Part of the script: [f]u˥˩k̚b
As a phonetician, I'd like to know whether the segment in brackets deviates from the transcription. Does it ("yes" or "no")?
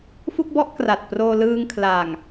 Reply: no